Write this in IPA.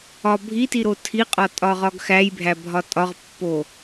ɒbʱitiɾo tʰiqʼɒ tʼɒʁɒɡxæjbʱæ bʱɒtʼɒʁpːo

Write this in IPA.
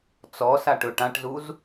t͡sɔsa ʈɵːʈãʈzuz

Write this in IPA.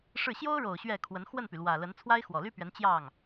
ʂɻ̩˥˩ ɕjo˥ʊ̯ɻo˨˩ʊ̯ ɕɥɛ˥˩kʰwə˧˥n xwə˥˩npy˩lwä˨˩ lə˧˥n t͡sʰwa˥ɪ̯xwɔ˨˩ly˥pɥɛ˧˥n t͡ɕjɑ˥˩ŋ

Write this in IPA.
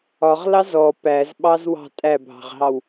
ɒʁlɑz ɔ pæzɓɑzwɑ̤ tʼæbʱɑ̤ʁɦɑw

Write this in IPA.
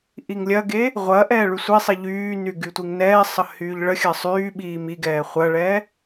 ʔiŋlʲɐɡe | ʁʷɐʔɛː ɭysʷisˤi ʎyːny ɡytʷiŋnɛːsˤə hyːʎɭəxʲɐ sˤyːɓiː miɡɛː χʷɐɭɛ

